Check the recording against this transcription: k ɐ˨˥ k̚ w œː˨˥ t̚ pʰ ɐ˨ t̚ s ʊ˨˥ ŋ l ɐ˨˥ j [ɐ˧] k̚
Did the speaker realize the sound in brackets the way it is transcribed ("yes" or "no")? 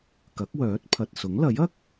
no